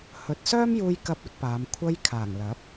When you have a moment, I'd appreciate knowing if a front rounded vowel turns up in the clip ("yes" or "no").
yes